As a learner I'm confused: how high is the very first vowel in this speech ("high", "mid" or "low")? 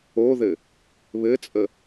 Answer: mid